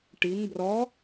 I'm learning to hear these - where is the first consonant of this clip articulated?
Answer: retroflex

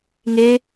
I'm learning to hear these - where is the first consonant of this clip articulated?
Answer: velum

